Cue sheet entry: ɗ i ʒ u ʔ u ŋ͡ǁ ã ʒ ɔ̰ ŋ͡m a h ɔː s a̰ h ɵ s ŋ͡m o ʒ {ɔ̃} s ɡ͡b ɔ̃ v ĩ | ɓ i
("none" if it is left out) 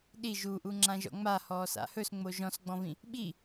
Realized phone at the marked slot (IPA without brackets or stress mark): ɔ̃